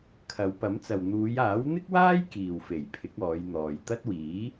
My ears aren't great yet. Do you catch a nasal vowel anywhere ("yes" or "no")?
no